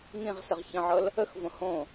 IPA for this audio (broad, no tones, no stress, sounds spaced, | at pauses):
ŋ ĩ ʁ s ə ʁ ç ə̃ ʕ ɤ l | ə x v õ h õ